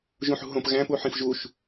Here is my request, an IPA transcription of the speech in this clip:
ʒ ũ ħ ṳ ɦ õ p ɣ æ̃ p u ħ ĩ f ʒ u ʃ

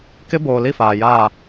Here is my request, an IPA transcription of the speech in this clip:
k ɪ˦ b oː˨ l i˦˨ f aː˨ j aː˦˨

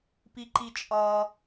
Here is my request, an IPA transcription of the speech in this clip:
p i ǃ i t͡ʃʼ ɒ

